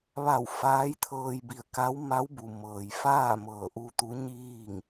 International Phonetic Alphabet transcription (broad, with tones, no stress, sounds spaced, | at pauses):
ʋ a˧˩ w f aː˧˥ j t̪ʰ ɤː˧ j b i˧˩ ə̯ k a˧˥ w m a˧˥ w b u˩ m ɤː˩ j f aː˥˨ m ɤː˧˩ ʔ u˧ t̪ u˧˥ ɲ iː˥˨ ŋ